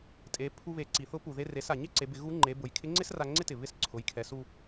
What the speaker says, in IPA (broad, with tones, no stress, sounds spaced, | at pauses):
tʼ e˩˧ pʰ u˧ β e˩˧ ǀ i˩ θ ʊ˧˥ p u˩ ð e˧ r e˩˧ s a˩ ɲ ɪ˥ ǀ e˩˧ b ɪ˩˧ ɣ u˧˥ ŋ͡ǃ e˩˧ b ʊ˩˧ j kʰ ɪ˧˥ ŋ͡ǀ ɪ˥ s r a˧ ŋ͡ǀ ɪ˥ t ɪ˩ β ɪ˧˥ s ǀʰ ʊ˩˧ j kʰ ɛ˩˧ s u˧